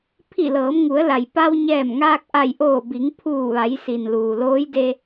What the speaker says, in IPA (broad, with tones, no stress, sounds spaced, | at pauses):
pʰ i˧˩ l ɤː˩˧ m ŋ u˩˧ ə̯ l a˩ j p a˧ w ɲ ɛː˧˩ m ŋ aː˧ k̚ ʔ a˧˩ j ʔ oː˧˩ b i˩˧ ŋ pʰ uː˧˩ ʋ a˩˧ j s i˩ n l uː˩ l oː˧˥ j d e˧